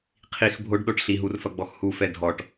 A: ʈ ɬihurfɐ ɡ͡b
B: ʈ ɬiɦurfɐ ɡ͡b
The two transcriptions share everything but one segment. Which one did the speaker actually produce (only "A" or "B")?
B